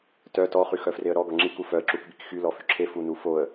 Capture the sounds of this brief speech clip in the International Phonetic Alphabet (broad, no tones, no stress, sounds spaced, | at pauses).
t œ t ɔ χ y x œ f r e ə̯ ɾ ɔ ɡ ɔ ŋ͡ǁ i k u f œ ə̯ ǁ u k b i k x y l ɔ f y ǁʰ e f u n u f o ə̯